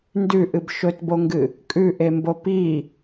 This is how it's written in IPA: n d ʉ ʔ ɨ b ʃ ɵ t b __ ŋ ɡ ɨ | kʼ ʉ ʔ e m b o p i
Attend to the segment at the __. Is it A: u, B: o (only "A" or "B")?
B